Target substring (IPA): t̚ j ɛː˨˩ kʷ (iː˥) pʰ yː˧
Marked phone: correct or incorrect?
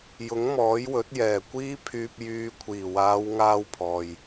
correct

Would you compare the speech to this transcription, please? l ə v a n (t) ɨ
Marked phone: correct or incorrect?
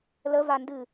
incorrect: d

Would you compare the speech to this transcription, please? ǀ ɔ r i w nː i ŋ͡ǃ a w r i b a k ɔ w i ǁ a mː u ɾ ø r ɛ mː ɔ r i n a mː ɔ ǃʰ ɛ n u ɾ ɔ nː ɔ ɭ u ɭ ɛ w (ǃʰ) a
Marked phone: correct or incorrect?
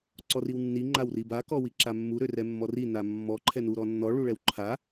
correct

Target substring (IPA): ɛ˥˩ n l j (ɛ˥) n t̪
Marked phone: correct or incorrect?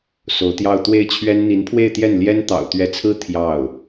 correct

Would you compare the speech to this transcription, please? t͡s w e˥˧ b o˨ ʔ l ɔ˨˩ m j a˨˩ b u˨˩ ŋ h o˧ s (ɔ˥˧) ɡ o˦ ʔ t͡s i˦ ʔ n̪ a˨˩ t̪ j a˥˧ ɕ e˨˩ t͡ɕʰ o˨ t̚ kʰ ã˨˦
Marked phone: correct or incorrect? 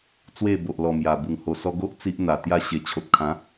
incorrect: ɔ˧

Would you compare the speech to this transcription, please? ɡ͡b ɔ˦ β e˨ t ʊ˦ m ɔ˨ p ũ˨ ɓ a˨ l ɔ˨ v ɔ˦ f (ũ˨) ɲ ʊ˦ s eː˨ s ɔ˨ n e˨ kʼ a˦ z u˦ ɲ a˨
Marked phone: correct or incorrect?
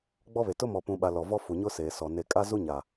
incorrect: u˨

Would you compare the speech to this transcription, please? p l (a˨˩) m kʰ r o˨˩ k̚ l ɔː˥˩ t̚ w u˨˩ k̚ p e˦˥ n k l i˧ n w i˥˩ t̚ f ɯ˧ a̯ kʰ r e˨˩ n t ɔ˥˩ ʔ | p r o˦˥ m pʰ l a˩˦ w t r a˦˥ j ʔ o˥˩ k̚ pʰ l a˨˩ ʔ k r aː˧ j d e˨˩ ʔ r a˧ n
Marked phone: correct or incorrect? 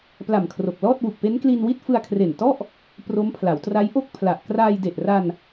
correct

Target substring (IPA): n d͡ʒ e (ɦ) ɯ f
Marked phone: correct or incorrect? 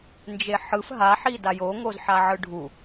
incorrect: ħ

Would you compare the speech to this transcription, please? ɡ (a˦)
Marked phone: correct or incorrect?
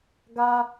correct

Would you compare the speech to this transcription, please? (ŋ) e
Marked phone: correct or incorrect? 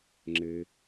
incorrect: ŋ͡ǁ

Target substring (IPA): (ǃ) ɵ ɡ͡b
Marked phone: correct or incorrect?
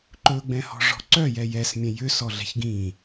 correct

